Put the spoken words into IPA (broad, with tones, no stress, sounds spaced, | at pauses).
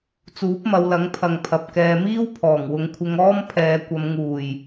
t͡s uː˨˥ p̚ m ɐ˨˧ w l ɐ˨˥ ŋ pʰ ɐ˨ ŋ pʰ ɐ˨ p̚ k ɛː˧ m iː˥ w pʰ ɔː˨˩ ŋ w ʊ˨˧ ŋ kʷʰ ɪ˧ ŋ ɔː˥ m pʰ ɛː˨˧ kʷ ɐ˨˧ m ŋ uː˨˩ j